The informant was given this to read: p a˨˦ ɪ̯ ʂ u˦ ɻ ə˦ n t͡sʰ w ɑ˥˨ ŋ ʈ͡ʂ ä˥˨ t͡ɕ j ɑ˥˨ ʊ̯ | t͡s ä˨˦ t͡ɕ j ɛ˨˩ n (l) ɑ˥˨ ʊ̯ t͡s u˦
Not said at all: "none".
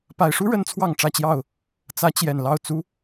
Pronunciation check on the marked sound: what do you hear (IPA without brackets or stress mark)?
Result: l